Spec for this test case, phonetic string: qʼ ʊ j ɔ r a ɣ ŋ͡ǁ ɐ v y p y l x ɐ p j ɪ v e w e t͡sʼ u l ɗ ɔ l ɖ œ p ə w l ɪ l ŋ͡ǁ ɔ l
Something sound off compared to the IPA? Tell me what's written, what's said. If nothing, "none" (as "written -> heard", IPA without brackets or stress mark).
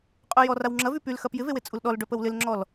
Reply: ɣ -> w